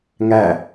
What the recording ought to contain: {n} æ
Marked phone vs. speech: incorrect: ŋ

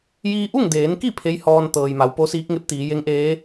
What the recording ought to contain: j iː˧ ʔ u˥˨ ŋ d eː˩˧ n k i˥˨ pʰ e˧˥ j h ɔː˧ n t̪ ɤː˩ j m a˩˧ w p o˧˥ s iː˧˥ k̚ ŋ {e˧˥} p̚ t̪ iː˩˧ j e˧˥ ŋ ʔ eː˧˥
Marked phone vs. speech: correct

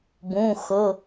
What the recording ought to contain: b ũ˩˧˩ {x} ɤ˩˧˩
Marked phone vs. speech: correct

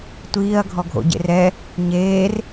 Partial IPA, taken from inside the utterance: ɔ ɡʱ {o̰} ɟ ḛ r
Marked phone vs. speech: correct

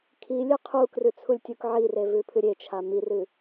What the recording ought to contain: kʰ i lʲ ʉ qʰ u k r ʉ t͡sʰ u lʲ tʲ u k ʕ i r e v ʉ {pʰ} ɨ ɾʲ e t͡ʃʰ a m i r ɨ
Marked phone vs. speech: correct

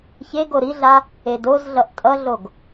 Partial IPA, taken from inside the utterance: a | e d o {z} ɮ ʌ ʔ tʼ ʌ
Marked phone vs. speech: correct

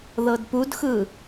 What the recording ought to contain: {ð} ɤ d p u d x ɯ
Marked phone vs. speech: correct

